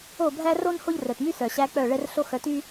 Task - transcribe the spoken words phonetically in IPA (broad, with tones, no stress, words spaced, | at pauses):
o˦˨bʱæ˦ ro˦n ho˦ʎrœ˨tmy˦ sœ˨ɕæ˧ k͡pœ˦˨ɭɛ˦r ɬo˦xœ˧ty˦